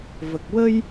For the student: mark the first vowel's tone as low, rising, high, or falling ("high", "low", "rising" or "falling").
low